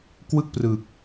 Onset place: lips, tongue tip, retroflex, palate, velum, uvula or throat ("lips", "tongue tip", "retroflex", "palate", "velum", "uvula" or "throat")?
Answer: velum